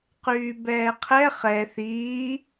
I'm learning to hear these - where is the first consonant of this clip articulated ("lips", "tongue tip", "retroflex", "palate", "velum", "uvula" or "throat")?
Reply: uvula